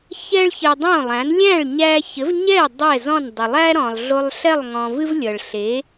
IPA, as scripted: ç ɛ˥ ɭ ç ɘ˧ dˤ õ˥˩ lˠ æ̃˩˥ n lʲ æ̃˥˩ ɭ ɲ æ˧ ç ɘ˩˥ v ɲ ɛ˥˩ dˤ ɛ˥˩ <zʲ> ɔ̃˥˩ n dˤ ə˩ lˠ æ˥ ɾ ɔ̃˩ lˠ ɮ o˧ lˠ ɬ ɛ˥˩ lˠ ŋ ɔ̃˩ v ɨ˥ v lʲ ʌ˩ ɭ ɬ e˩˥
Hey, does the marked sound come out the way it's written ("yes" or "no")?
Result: no